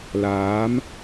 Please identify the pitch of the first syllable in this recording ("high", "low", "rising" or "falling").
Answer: rising